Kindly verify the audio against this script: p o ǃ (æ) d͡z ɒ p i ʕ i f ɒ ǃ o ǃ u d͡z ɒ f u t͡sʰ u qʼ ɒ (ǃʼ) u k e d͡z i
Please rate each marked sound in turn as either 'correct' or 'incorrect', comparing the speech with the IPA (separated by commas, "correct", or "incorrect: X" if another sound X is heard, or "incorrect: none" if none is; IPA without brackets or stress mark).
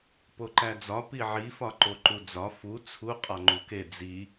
correct, incorrect: ŋ͡ǃ